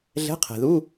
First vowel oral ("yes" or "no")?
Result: yes